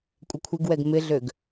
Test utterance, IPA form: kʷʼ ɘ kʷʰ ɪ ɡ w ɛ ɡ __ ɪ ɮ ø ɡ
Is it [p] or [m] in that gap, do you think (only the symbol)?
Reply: m